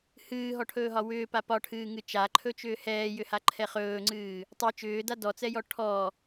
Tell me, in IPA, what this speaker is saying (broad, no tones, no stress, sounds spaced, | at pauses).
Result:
h ɨː ɦ ɔ ʈʰ ɵː ɦ ɒ w ʏː p a p ɒ ʈʰ ɨː ŋ ɨ t͡ʃ a ǃʰ ɵ t͡ʃ ʏː h ɛː j ʏ h a ǃʰ ɛ χ ɵː ŋ͡ǀ ɨː | tˤ ɨ t͡ʃ ʏː d a d ɔ t͡s ɛ j ɔ ʈʰ ɔ